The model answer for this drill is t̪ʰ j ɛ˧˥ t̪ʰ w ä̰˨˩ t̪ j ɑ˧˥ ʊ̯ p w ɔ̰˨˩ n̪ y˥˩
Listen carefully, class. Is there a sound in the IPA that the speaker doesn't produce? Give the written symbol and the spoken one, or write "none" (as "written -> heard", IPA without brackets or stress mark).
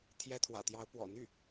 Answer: none